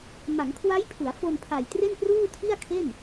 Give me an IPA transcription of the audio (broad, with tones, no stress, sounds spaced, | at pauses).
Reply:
m a˩˦ ŋ kʰ w a˦˥ j pʰ u˩˦ a̯ f o˧ n pʰ a˨˩ j t r e˥˩ n p r uː˥˩ tʰ i˥˩ a̯ kʰ e˥˩ n